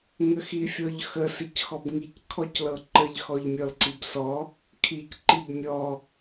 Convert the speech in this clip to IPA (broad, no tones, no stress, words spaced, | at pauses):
ŋəxifʲɔʎxə sicxɔbŋic kʰɔclɤǃəʎ xɔʎmʲɔlǀibsɔ | kʰic ǃibmʲɔ